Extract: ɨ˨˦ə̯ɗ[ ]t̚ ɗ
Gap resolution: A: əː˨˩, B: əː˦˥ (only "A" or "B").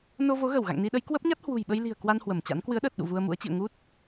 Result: A